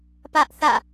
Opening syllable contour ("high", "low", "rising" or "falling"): high